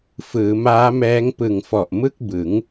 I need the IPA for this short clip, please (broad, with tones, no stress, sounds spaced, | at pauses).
f ɯː˩˦ m aː˦˥ m ɛː˦˥ ŋ p ɯ˨˩ ŋ f ɔ˨˩ ʔ m ɯ˥˩ k̚ b ɯ˩˦ ŋ